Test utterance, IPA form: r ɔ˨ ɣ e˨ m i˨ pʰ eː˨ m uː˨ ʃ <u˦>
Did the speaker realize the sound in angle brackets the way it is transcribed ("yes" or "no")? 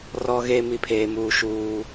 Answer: no